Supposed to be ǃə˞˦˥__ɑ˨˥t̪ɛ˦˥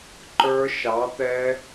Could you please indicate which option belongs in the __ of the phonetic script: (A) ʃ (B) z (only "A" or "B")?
A